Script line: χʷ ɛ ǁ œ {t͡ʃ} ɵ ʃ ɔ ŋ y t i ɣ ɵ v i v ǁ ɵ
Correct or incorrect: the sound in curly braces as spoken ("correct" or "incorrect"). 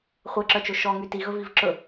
correct